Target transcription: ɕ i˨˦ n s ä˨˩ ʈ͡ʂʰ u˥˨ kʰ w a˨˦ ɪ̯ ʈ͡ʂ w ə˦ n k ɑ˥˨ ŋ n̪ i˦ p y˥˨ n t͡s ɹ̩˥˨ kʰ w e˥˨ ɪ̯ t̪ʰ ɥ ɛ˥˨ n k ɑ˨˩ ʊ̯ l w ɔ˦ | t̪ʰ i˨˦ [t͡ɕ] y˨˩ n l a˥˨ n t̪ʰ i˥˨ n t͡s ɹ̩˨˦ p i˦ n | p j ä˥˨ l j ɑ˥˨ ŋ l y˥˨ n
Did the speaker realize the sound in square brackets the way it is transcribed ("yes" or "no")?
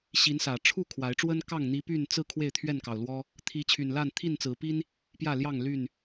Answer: no